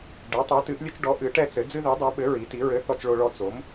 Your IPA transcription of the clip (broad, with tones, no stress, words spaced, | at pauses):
ɖɛ˨˥tˤɛ˨˥tɨ˨˥ʔlʲɘ˦t͡ʃ ɖɔ˨˥ ʔɨ˨˥ʈɛ˦t͡sɘ˨˥ d͡zɨ˦ði˨˥dˤo˨˥ɓɘ˨˥ ɹi˨˥ti˨˥ ɹɘ˨˥ θɔ˦t͡ʃɭo˦ɭɔ˦ t͡so˨˥m